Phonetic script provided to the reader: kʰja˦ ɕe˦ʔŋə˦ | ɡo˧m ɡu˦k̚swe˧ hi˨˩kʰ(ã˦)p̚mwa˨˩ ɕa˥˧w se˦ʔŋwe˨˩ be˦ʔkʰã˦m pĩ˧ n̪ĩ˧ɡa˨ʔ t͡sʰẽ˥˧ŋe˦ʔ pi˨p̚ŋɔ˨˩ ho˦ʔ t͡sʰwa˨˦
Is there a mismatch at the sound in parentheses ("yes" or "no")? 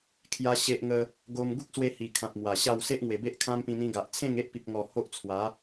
yes